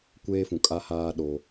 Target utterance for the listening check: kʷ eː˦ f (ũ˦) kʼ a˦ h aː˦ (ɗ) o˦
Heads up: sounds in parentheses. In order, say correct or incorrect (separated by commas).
incorrect, correct